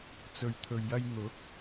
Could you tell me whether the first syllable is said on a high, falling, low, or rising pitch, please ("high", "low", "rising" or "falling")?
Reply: low